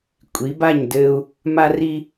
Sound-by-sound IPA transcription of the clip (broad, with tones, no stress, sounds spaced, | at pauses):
kʷʼ i˨˦ b a˦˨ ɲ d ɘ˦ u̯ | m a˦ r i˦